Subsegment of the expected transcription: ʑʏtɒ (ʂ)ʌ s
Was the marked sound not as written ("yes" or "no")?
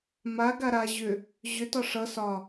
no